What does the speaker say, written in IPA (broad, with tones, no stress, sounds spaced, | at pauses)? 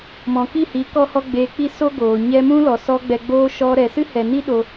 m ɔ̃˨ k i˦˨ h i˨˦ k ɔ˦ h ɔ˦ ɡ͡b eː˧ k͡p i˦ s o˦ ɡ oː˨ ɲ ɛ˧ m ũ˦ l ɔ˨ s ɔ˧ ɡ͡b ɛ˧ ɡ͡b oː˦ ʃ ɔ˧ ɾ ɛ˨ s ɨ˦ h ɛ˨ n i˦ ɗ o˧